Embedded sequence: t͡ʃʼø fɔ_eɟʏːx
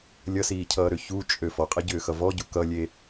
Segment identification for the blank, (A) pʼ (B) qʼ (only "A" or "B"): B